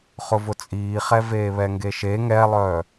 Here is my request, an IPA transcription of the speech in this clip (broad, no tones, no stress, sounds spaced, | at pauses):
χ ʊ v ʊ t͡sʼ iː χ ɛ v eː β ɛ ŋ ɡ e ʃ e ŋ ɛ lˠ œː